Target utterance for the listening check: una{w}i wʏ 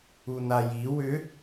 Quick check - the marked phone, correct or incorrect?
incorrect